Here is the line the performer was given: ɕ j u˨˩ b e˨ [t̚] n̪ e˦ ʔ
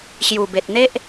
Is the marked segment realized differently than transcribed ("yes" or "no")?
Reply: no